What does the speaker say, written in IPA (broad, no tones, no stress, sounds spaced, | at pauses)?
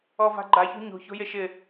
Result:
ɔ v a̤ ɡ͡ǃ a ç o̤ ɲ o̤ ç o̤ j e ʃ ɪ